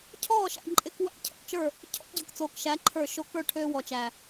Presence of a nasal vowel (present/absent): absent